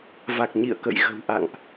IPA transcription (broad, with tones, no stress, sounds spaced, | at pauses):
v a˨˩ k̚ ɲ ḭ˧˨ ə̯ k ə̰˧˨ j ɣ ə̤˨˩ w ʔ a̰˧˨ ŋ ʔ